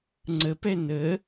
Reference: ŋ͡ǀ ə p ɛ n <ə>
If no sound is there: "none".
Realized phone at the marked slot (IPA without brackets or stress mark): ə